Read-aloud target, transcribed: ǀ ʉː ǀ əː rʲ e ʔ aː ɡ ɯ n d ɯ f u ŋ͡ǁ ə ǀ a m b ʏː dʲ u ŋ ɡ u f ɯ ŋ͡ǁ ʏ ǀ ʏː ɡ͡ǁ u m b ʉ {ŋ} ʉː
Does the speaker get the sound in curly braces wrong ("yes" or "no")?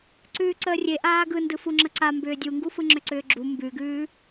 yes